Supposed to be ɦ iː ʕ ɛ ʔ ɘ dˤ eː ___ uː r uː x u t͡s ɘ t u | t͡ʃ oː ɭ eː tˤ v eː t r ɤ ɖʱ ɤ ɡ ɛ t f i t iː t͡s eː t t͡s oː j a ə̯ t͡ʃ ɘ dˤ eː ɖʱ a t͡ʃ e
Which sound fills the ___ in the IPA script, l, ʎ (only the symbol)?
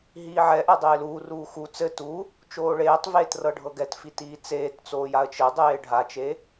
l